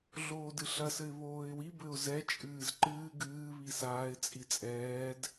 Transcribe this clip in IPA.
ɮ oː d ɨ ɬ ɐ s ɘ ɪ̯ β oː ɪ̯ w i b ɘ ʊ̯ z ɛ t͡ʃʼ ɨː z ǃ ɨː ɡ ɨː β i s aː ɪ̯ t͡sʼ i t͡sʼ ɛː d

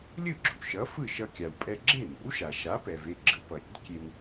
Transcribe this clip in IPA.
lʲ ɯ˥˩ ɡ͡ǁ ṵ˩ ʃ ʌ˩˥ f ɯ˥˩ ʃ ʌ˧ kʲ a˩ w pʼ ɛ˧ ɡ͡ǁ e˥˩ n o̰˩˥ w ʃ a˩ ʃ a˩˥ p ɛ˩ v e˥˩ ɡ͡ǁ ɯ˩˥ p ʌ˩ ɾʲ ɛ̰˩˥ d kʲ e˧ n

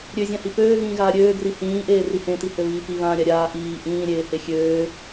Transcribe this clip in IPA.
ɾʲ ø zʲ ã h i p øː ɣ ĩː ɣ aː ɾʲ øː ɡ r i h ĩː ʔ eː r i h ẽ t i h ø β iː p i β ãː ɾʲ a ɾʲ aː ʔ iː ʔ ĩː ɾʲ eː h e xʲ øː

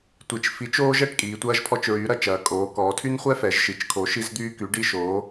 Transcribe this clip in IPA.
tʷ i˩˧ t͡ʃ f i˨˥ t͡ʃ oː˥ ʒ ɛ˨˥ ʈ kʼ iː˩˧ tʷ ɐː˥ ʒ pʰ ɔ˥ t͡ʃ ɹ yː˨˥ ɾ ɐ˨˥ t͡ʃ ɐː˩˧ kʼ oː˩˧ k ɔː˩˧ tʰ y˥ n χʷ ɛ˥ f ɛ˩˧ ʒ ʃ i˩˧ t͡ʃ kʰ o˨˥ ʃ i˥ z d̪ yː˥ k y˨˥ ɖ i˥ ʃ oː˨˥

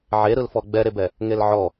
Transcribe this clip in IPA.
ʕ e ɾ ɯ l f ɔ ɡ͡b ɛ ɾ e b ɛ | ŋ e l ʕ ɔ

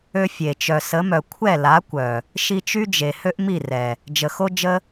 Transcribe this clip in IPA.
ø˦ fʲ e˨ t͡ʃ œ˨ s ə˨˦ m œ˨ kʷʰ ɛ˦˨ l a˨˦ kʷ œ˨ | ʃ i˧ t͡ʃ y˦ d͡ʒ e˨ h ø˦ ʔ m i˦˨ r ɛ˨ | d͡ʒ ə˨ x o˦ d͡ʒ ə˦

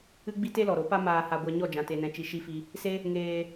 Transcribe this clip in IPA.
ɨ˦ ɡ͡b i˦ t e˦ l ɔ˨ ɾ o˨˦ p a˦ m aː˧ h a˧ ɡʷ a˧ ɲ ɔ˦˨ d͡ʒ ã˨ t e˨ n ɛ̃˨ t͡ʃ i˨ ʃ i˦ f i˦ | s e˦ | ŋ eː˧

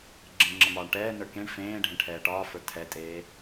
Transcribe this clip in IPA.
ɡ͡ǁ ẽ ŋ͡ǁ ə m ɒː ɳ ʈ ɛː n ə˞ k ẽ ɳ f ẽː ɖʱ ẽ ʈʰ ɛː ʈ ɒː f ə˞ tʰ ɛ tʼ eː

